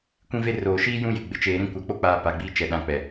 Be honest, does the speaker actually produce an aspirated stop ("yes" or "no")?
no